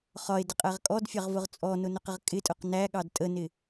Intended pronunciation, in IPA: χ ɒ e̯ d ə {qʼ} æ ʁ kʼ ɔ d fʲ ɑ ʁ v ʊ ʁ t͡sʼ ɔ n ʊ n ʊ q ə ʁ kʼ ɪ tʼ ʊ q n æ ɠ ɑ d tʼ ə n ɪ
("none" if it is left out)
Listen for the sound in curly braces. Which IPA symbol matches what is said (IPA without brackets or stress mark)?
qʼ